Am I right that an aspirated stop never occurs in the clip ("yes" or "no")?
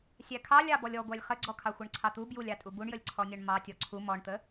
no